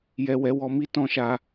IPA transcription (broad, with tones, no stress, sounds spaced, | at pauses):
j ɛ˨ w ɛ˨˦ w ɔ˧ m i˦ t ɔ̃˦ ʃ a˧